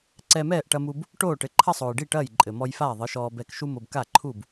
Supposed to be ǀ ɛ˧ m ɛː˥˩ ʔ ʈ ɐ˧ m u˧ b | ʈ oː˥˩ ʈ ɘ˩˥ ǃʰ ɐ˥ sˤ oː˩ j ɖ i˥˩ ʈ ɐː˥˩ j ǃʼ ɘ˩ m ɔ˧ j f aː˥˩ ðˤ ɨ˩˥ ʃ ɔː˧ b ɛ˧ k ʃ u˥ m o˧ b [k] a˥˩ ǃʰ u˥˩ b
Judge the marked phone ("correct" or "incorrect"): correct